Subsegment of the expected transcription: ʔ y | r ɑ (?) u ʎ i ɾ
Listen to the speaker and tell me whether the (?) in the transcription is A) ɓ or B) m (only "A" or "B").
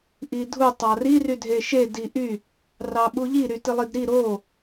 A